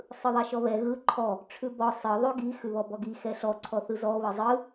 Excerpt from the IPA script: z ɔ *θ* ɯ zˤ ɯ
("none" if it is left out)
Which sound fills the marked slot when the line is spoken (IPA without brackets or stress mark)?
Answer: β